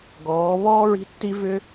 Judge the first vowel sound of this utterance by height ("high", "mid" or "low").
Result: mid